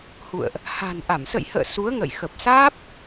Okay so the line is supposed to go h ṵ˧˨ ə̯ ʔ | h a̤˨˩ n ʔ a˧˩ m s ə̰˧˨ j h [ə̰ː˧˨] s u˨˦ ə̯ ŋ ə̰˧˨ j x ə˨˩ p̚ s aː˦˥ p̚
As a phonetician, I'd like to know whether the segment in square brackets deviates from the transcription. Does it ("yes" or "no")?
no